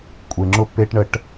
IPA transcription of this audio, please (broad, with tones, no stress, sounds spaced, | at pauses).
kʷʼ e˨ ŋ͡ǁ ʊ˦˨ pː e˦ ʈ ɳ ə˦ ʈ